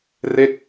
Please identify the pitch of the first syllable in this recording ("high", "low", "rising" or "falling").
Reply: falling